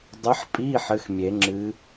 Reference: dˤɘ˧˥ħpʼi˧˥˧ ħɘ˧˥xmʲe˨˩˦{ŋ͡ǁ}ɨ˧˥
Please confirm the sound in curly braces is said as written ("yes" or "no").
yes